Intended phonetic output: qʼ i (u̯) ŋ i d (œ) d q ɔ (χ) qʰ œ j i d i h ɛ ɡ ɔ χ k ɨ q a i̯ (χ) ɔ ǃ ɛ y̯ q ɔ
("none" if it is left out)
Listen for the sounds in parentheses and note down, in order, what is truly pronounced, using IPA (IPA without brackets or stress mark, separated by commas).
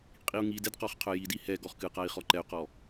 u̯, ɛ, χ, χ